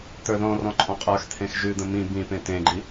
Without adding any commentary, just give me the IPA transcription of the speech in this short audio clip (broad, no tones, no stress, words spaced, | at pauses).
t̪ə˞ðɔ̃rɔ̃ ǃʼɔ̃qʼə˞xt̪ʰẽx ʒʉd̪ə̃ mĩ bĩpẽ tẽɡ͡ǃi